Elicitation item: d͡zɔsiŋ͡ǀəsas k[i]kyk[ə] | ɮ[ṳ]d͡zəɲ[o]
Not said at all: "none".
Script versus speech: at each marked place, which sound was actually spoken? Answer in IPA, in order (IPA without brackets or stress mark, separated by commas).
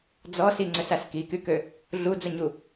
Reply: i, ø, u, u